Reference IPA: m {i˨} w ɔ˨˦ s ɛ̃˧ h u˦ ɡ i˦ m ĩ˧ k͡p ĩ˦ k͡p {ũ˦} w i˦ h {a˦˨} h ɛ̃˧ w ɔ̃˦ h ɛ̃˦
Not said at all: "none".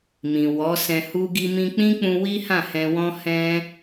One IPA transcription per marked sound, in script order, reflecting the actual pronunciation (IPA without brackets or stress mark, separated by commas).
ĩ˨, ũ˧, ã˦˨